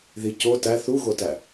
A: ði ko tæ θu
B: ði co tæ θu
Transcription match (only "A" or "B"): B